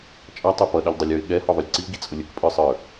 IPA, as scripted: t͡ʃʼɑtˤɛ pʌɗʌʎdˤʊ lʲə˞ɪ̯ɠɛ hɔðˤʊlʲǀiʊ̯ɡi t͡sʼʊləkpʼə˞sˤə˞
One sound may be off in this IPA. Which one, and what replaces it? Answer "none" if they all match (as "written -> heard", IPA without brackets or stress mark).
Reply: l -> lʲ